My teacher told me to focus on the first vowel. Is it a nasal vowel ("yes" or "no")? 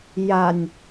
no